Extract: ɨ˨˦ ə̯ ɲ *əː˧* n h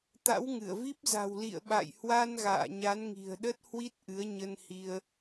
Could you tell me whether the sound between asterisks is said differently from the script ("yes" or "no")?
yes